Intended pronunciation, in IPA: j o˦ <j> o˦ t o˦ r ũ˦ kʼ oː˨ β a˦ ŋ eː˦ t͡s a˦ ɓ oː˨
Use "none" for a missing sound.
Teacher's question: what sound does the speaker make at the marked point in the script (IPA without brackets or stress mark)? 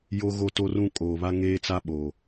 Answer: ɣ